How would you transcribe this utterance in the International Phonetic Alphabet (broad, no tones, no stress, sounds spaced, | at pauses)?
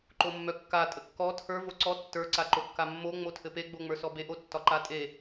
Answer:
ǃ o mː œ kː a tʼ ə kː ɔ tʰ ə˞ v o ǀ ɔ tː ə˞ ǀ a ǃ o kː a mː o ŋ͡m o tʰ ɘ p e ɡ͡b o ŋ͡m ə˞ s ɔ b e ʔ o tː ɒ ǃ a tʼ e